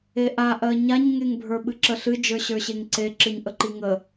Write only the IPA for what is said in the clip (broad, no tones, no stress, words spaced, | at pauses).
eʔaʔɜ ɲaɲŋeŋbʱə˞ ɓɨǁəɬɨ d͡ʒə˞ɕə˞ɕeŋǀe ǁɨɲʔəǃiŋə